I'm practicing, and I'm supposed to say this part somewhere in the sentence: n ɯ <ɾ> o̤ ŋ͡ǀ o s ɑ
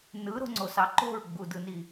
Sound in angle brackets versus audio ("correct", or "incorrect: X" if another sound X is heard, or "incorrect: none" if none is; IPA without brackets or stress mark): correct